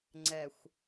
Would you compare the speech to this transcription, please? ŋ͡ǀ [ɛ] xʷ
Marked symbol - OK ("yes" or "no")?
yes